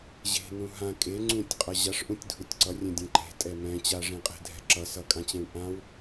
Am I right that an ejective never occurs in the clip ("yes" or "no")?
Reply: no